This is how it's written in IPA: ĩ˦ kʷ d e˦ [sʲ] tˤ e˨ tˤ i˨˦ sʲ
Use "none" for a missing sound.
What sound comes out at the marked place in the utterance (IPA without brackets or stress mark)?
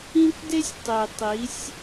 sʲ